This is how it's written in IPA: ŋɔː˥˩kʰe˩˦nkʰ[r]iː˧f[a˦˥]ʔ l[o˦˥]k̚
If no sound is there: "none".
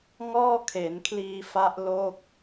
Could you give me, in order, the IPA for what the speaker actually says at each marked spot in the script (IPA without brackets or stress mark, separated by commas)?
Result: l, a˦˥, o˥˩